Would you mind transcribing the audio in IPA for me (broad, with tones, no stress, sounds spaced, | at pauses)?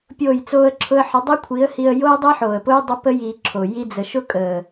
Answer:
pʲ oː˦˨ j t͡s oː˦ ə̯ ǁʰ ʊ˦ ə̯ ħ ə˨˦ dˤ i˦ kʷʰ i˨˦ ə̯ h i˧ ə̯ j o˦ j dˤ i˦ ħ oː˨ ə̯ p ʊː˦ j dˤ ə˦ p ə˦ j iː˧ ǁʰ o˨ j i˧ d͡z ə˨ ʃ ʊ˦ kʼ əː˨